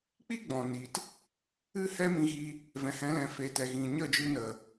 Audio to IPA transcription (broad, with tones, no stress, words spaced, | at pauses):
k͡pi˦ɡ͡bɔ̃˨ni˨t | ɨ˦ hɛ˦mĩ˧ɣi˧ | vɛ̃˨hɛ̃˨˦lɛ̃˨fe˨ tɛ˨ɣĩ˨ ɲə˦˨d͡ʒɨ˧nə˨